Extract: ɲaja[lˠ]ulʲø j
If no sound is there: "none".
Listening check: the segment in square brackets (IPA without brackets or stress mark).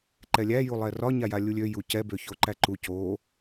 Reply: lʲ